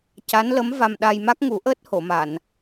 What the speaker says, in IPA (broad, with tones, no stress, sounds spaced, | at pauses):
c a˧˥ n l ə˧˥ m v a˧ m ɗ a˧ j m a˦˥ k̚ ŋ u˨˩˦ ʔ əː˦˥ t̚ h o˨˩˨ m a˨˩˨ n